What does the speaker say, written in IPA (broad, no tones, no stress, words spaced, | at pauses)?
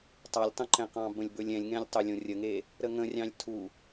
tˤɑlʲtˤõǃɛ̃qɑ̃ bə̃lʲbɵlʲɛ̃lʲŋɛ̃lʲ tˤɵlʲõrʲəŋe | ɾəŋə̃rʲɑ̃lʲ tʰu